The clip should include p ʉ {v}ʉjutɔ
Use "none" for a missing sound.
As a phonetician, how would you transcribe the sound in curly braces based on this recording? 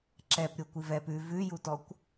v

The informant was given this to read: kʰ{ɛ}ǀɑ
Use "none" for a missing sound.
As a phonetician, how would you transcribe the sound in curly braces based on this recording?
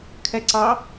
ɛ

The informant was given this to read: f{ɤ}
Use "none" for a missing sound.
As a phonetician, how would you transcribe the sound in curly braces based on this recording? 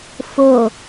o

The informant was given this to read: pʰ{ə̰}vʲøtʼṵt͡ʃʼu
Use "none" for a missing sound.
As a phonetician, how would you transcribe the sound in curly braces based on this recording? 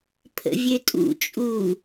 ə̰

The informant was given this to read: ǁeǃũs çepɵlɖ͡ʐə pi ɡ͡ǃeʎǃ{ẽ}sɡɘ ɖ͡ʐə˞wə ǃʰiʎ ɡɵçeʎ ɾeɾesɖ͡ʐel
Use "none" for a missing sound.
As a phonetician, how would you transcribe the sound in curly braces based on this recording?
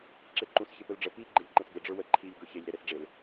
ẽ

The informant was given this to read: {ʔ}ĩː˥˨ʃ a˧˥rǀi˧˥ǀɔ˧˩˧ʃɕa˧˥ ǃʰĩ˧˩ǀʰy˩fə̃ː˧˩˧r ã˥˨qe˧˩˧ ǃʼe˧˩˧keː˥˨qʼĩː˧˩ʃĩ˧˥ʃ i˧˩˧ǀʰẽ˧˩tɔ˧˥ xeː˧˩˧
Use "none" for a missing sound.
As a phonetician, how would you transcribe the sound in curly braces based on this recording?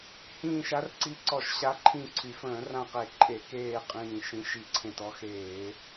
h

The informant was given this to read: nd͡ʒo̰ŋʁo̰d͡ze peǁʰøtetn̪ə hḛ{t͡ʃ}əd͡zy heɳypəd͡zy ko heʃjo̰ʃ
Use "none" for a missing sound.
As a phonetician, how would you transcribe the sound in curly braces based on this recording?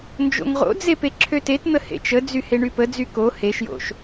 t͡ʃ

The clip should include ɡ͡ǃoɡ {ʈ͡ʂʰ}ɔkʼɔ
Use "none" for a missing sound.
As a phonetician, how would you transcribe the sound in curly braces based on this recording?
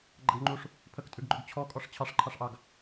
t͡ɕʰ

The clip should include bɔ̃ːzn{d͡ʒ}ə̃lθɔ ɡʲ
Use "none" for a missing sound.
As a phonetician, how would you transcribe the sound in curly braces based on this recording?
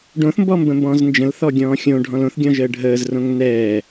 d͡ʒ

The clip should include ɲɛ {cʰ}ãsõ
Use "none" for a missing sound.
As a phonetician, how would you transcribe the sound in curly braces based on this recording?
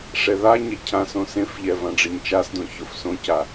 cʰ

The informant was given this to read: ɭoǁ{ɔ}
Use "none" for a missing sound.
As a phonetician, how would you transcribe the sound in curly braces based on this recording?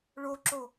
o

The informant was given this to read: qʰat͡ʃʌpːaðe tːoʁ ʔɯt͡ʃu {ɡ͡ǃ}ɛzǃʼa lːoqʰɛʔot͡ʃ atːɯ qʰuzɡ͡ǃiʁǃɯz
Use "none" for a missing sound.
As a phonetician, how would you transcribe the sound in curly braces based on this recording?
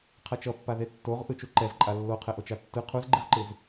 ǃ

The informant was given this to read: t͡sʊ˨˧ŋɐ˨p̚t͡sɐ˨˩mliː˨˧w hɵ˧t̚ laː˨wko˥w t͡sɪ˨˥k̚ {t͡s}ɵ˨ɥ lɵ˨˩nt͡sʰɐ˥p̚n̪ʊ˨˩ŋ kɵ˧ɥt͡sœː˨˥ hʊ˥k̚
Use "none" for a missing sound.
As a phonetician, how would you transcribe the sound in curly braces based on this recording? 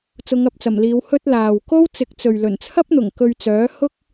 t͡s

